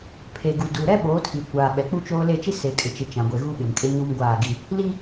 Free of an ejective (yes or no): no